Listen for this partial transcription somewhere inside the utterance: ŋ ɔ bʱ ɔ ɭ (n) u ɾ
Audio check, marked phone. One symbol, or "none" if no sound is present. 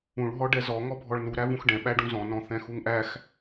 n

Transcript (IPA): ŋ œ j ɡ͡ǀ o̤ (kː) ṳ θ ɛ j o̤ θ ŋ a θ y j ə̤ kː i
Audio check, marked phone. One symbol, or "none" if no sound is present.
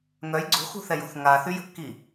x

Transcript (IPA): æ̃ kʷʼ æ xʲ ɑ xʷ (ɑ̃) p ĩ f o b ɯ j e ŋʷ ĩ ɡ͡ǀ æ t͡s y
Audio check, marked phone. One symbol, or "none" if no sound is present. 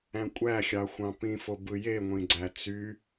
ɑ̃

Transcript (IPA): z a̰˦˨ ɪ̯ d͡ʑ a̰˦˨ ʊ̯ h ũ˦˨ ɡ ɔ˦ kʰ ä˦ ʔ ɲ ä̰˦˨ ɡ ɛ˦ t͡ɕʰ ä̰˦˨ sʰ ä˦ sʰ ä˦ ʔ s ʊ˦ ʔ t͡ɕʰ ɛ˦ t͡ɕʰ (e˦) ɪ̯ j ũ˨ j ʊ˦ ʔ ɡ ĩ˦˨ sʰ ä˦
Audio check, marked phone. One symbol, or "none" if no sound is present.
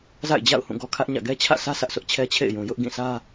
ḛ˦˨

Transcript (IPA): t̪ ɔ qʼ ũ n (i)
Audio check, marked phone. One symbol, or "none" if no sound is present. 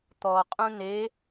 e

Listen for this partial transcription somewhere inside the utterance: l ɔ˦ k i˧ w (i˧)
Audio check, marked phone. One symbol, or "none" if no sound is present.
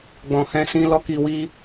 i˦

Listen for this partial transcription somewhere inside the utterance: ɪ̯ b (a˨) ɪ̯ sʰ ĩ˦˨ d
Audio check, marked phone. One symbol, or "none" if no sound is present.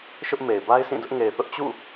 a˦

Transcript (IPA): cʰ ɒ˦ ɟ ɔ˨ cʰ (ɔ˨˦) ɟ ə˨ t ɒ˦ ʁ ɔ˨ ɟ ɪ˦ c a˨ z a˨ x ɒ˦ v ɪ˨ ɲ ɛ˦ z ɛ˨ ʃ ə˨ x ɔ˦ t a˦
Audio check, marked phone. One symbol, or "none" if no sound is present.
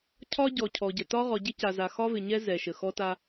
ɔ˨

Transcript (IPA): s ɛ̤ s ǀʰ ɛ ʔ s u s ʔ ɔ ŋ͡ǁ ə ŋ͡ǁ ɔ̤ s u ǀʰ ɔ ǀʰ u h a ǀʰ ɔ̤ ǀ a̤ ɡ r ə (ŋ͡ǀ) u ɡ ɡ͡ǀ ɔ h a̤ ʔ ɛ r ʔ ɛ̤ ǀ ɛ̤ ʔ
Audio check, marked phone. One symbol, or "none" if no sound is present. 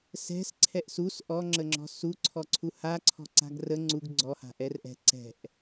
ŋ͡ǀ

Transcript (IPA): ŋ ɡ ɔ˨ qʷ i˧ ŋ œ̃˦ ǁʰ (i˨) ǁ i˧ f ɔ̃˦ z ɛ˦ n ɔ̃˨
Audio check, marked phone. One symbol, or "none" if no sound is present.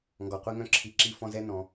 i˨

